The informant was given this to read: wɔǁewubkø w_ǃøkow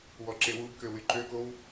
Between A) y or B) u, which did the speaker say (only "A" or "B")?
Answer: A